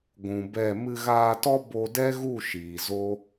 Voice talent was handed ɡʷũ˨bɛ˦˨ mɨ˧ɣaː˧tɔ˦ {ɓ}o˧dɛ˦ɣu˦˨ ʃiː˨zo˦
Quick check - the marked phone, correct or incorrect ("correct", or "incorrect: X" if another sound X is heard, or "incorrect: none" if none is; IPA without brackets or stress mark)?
incorrect: b